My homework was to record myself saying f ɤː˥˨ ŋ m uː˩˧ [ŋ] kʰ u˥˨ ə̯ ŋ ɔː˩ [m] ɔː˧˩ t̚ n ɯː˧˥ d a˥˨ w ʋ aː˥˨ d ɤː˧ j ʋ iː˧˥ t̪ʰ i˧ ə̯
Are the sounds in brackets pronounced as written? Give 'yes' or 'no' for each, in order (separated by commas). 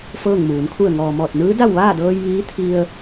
no, yes